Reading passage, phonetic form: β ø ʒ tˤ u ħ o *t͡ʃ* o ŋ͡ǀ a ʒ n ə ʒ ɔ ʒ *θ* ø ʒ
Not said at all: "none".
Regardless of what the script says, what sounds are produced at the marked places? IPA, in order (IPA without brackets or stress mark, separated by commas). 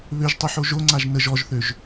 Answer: ʒ, θ